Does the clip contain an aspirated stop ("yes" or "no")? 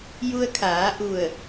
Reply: yes